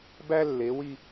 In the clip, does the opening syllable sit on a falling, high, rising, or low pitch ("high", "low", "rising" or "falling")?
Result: high